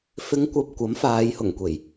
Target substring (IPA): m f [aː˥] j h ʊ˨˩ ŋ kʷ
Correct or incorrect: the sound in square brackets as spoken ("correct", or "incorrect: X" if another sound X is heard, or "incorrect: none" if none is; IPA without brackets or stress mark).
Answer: incorrect: aː˨˧